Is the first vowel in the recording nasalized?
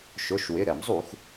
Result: no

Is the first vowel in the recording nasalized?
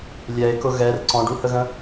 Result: no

